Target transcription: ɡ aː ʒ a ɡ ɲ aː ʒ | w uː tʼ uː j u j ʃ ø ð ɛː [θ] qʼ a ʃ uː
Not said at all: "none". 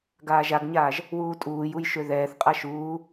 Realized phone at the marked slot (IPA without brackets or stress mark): θ